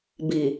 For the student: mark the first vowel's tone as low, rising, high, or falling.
low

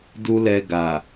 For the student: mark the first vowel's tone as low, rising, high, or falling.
high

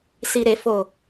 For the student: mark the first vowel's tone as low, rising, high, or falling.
low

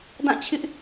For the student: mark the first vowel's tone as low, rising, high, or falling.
falling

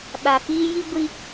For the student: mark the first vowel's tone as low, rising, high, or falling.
low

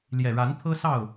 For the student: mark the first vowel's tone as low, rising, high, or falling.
low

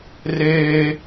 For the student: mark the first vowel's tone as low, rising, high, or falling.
high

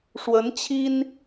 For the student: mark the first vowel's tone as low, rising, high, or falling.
rising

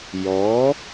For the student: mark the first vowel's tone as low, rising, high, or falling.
rising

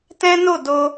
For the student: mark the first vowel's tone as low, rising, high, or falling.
high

